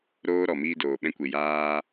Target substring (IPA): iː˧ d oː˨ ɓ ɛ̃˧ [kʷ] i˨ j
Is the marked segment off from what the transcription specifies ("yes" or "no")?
no